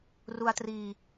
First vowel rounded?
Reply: yes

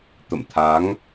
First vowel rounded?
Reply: no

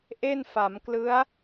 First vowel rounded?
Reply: no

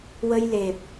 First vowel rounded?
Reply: no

